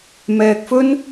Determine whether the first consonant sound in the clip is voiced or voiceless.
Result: voiced